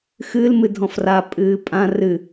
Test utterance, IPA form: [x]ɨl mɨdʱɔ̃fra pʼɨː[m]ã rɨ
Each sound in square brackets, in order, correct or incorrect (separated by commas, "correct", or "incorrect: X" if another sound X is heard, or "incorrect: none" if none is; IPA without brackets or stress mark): correct, incorrect: pʼ